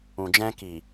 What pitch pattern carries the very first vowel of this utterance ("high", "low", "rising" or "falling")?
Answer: low